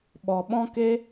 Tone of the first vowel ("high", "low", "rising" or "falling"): low